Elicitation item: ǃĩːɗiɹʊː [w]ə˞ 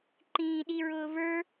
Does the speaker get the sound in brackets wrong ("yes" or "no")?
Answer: yes